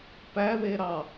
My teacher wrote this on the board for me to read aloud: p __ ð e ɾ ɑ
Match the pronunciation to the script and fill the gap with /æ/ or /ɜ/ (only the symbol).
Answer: æ